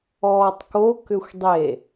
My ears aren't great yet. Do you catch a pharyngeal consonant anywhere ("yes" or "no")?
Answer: no